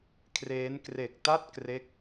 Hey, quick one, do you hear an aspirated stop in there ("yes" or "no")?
yes